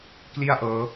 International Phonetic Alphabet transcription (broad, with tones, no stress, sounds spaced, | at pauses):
k l i˥˩ a̯ ʔ ɤː˦˥